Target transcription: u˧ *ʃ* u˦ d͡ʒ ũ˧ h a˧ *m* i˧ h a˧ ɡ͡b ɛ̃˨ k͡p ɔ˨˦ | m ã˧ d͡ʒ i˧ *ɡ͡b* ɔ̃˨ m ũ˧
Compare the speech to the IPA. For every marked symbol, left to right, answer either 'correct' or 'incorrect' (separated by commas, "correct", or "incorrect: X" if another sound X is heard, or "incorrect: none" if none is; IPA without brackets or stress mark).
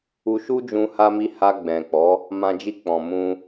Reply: correct, correct, incorrect: k͡p